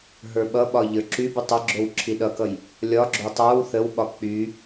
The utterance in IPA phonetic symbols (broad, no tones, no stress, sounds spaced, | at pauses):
ɦ ə˞ ɓ ʌ ɓ ɒ ʎ ə˞ ǁ y b y tˤ ʌ ɡ͡ǁ o w ǁʰ i ɗ ʌ k ʌ j | lʲ ɒ ɡ͡ǁ o tˤ ə˞ w θ ə w ɓ ɒ k͡p y